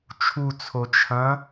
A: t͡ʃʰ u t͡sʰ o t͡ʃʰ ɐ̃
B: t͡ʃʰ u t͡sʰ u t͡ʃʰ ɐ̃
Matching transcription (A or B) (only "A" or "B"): A